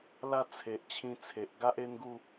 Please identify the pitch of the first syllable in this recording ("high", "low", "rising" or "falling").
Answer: falling